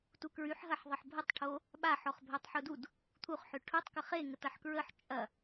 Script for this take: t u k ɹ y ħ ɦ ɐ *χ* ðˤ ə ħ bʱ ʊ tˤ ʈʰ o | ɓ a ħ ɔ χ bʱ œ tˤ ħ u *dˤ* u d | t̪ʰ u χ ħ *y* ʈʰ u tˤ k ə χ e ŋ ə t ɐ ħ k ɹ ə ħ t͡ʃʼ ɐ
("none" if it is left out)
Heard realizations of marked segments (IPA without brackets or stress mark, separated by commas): ħ, d, ʏ